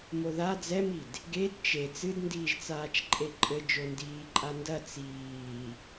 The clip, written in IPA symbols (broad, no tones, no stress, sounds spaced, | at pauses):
m o ð a d͡z ɛ m i d | ɡ e d t͡ʃ e t͡s ɨ d n d iː ʒ t͡s aː t͡ʃ ǃʼ e ǃʼ ɘ d͡ʒ o n d iː ǃʼ a n d ɐ t͡s iː